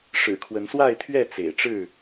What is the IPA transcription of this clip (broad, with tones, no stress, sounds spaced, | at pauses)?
ʂ ɻ̩˨˩ kʰ w ə˨˦ n s w a˥˨ ɪ̯ t̪ʰ ɥ ɛ˥˨ t͡s ḛ˨˩ ɪ̯ ʈ͡ʂ ɻ̩˥˨